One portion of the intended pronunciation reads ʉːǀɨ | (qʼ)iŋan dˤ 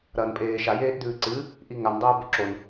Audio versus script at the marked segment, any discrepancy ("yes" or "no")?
yes